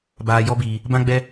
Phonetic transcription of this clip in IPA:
b aː˧ j ɔ˦ b iː˧ | b ã˦ ɡ͡b ɛ˦

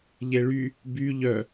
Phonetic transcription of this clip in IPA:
ʎ e ɭ y | b y ʎ œ

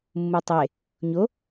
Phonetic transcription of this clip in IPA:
mː u tˤ e | ɲ o

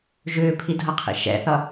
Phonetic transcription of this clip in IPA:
ʒ ʏː pʰ i dʱ ʌ qʰ ḭ ʃ ɛ̰ θ ʌ

